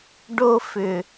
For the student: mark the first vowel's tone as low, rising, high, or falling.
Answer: high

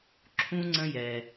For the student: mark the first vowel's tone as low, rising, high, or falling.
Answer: high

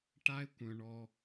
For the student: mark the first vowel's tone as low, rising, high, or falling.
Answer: high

